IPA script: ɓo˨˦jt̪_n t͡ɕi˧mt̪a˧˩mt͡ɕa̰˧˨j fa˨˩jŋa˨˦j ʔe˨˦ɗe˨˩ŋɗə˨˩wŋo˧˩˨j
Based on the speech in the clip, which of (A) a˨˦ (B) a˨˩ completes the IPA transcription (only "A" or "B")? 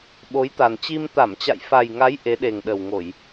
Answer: B